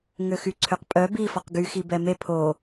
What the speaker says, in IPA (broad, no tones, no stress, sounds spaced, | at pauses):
ŋ ø x y ǀʰ ø q pʼ œ b i f ɔ q ɡ y x i b ɛ m e pʰ o